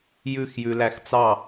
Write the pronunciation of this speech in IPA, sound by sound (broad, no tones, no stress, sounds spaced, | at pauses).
j ʉ x j ʉ l æ x t͡s ɑ